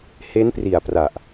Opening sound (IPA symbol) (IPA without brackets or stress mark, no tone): h